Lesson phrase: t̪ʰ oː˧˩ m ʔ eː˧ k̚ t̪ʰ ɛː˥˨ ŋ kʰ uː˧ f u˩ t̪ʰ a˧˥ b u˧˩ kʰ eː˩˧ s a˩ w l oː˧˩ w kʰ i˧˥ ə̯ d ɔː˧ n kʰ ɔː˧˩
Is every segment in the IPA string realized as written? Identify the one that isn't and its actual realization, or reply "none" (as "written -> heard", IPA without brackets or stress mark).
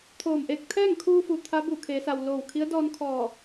none